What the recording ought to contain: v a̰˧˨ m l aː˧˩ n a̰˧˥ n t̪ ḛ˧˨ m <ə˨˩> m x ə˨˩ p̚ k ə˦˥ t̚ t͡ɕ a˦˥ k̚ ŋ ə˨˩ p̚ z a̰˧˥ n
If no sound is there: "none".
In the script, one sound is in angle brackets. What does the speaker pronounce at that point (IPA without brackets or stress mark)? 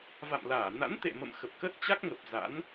ə̰˧˨